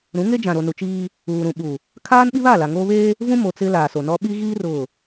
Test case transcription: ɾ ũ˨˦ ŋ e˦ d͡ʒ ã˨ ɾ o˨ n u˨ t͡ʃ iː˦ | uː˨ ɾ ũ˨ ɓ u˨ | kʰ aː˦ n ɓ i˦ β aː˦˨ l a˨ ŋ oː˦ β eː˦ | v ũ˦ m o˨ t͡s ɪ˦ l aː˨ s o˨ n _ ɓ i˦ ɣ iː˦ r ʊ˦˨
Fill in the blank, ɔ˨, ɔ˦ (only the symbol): ɔ˦